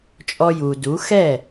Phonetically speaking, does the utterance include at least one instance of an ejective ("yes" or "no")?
yes